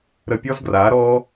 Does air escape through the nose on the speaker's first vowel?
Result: no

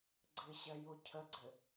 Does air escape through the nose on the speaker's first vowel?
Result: no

